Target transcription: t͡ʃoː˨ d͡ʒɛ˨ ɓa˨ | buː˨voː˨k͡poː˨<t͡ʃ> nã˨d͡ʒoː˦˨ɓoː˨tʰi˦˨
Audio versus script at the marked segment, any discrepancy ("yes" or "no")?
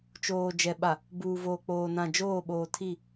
yes